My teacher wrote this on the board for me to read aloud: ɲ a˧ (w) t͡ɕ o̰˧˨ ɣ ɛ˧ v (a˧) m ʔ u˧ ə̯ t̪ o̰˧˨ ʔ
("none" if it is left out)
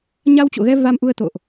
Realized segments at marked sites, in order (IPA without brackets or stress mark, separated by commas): w, a˧